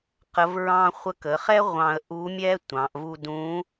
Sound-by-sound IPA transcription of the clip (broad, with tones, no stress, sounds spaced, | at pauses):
q ə˧˥ v ɹ ɑ̃˥ χʷ ə˧˥ k ə˩˧ χ ɛ˥ ʁʷ ɑ̃˧ ə̯ ʔ u˧˥ mʲ ɛ˥ tʷ ɑ̃˩˧ ʔ v u˧ d ũ˧˥